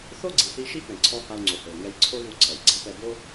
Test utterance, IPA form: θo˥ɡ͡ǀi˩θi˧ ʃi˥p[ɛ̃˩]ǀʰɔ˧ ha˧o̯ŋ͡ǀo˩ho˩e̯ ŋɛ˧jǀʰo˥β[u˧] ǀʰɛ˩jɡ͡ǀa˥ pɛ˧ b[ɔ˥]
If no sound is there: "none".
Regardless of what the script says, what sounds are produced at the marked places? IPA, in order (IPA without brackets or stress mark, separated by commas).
ɛ̃˩, u˧, o˥